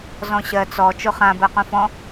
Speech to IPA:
z ɔ̃ ɕ ɜ t͡s ɔ t͡ʃ o χ ã b ɜ q ũ f ɔ̃

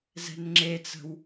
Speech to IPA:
z ɛ̤ n ŋ͡ǁ e t͡s ə̤ w

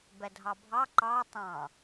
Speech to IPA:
b ɛ dʱ ɑ bʱ ɑ ǃ ɑ tˤ ɑ̃

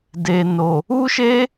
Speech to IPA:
d e˨ n o˨ | u˦ ʃ e˦

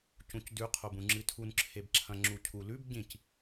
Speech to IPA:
c ũ c d ʉ qʰ o b ũ ŋ͡ǁ ɨ tʰ u n ǁʰ e b ǁʰ ɐ̃ ŋ͡ǁ u cʰ u l ʉ b ɟ ĩ c

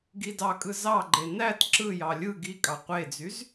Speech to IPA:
ɡ i d ɑ kʼ ɯ z ɑ ɡ͡ǃ e n æ t ǁ ɯ j ɑ lʲ ɯ ɡ i kʼ ɑ qʷ e d͡z y z

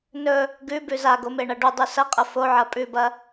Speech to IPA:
n ɵ | ɡ ʉ b ʉ z a ɡ o m e ɳ ɐ ɖ u dˤ ʉ s ɐ qʼ ɐ f o ʕ ɐ pʼ ʉ b ɐ

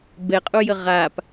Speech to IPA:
b ɛ qʼ u j ə ʁ a p

